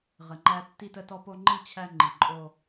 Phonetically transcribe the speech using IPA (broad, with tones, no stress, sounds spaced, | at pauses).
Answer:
ʁ ə˨ ŋ͡ǃ æ˧ tː i˧ t ə˧ t ɔ˧ p o˧ ŋ͡ǃ i˦˨ t͡ɕʰ æ˧ ŋ͡ǃ i˨ ǃʼ o˧